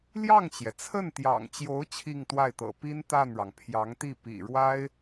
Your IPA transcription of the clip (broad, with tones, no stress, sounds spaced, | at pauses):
l j ɑ˥˩ ŋ t͡ɕ j ɛ˩ t͡sʰ ə˥˩ n t̪ j ɑ̰˨˩ ŋ t͡ɕ j o˧˥ ʊ̯ t͡ɕʰ i˥˧ ŋ t̪ w a˥˩ ɪ̯ t̪ ɤ̰˨˩ p i˥ n t̪ a˥˩ n ɻ ɑ˩ ŋ pʰ j ɑ˧˥ ŋ t̪ i˥˩ p ḭ˨˩ ɻ w a˥ ɪ̯